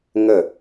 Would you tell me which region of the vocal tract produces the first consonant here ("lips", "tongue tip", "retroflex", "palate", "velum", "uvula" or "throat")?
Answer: velum